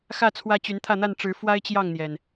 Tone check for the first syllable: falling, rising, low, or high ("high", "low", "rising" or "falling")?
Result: falling